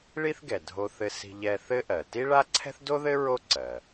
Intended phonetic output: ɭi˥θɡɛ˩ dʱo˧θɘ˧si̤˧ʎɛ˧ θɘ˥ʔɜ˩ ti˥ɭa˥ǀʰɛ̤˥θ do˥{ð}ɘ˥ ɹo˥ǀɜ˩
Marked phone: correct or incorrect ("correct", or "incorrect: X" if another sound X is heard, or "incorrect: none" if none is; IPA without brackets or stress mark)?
correct